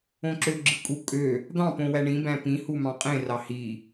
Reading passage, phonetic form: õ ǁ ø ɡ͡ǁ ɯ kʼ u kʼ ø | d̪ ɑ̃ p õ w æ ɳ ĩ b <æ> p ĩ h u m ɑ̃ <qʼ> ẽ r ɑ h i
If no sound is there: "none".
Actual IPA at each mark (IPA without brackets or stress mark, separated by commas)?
æ̃, qʼ